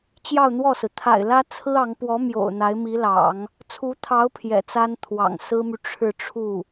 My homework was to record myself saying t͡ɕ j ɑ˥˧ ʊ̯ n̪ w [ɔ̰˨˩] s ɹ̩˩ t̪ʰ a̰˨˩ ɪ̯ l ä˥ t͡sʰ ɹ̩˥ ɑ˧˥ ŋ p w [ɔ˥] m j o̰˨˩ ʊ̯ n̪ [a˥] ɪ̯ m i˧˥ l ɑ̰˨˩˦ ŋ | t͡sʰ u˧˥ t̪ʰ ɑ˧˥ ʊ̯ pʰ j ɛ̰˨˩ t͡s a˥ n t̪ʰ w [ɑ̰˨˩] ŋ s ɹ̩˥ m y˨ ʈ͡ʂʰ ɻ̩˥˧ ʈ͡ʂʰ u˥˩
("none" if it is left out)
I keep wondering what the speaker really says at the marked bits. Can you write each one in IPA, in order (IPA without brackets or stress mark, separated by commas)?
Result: ɔ˥˩, ɔ˧˥, a˧˥, ɑ̰˨˩